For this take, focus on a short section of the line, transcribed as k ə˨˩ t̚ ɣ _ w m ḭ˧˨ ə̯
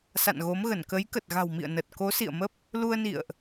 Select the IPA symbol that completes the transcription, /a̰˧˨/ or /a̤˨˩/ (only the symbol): a̤˨˩